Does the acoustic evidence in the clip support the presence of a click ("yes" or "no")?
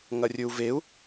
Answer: no